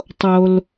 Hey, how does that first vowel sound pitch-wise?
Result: low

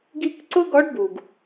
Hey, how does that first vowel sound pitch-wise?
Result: high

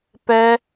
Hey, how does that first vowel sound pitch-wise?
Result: high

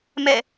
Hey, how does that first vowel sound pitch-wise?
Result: falling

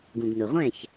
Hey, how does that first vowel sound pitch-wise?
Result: low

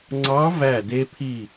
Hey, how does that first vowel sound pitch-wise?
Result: rising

